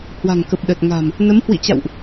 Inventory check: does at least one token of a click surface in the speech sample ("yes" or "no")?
no